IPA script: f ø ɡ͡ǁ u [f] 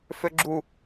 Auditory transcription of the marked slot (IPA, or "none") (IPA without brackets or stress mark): none